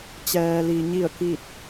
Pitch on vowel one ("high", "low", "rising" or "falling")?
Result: low